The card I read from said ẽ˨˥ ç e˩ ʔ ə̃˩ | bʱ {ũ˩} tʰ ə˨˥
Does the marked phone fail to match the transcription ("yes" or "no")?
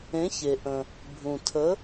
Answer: no